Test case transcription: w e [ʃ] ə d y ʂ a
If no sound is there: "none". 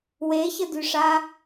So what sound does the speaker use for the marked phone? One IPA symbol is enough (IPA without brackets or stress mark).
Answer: ç